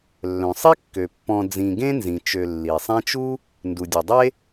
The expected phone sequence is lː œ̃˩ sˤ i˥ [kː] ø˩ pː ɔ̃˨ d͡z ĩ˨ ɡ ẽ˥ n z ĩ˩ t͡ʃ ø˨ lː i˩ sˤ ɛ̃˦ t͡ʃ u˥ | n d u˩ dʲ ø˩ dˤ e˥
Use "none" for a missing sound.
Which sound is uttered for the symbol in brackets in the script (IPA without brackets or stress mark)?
kː